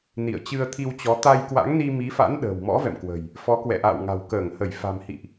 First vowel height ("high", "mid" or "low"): high